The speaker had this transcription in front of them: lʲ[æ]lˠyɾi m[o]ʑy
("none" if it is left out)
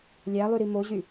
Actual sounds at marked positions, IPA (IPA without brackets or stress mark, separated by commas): æ, o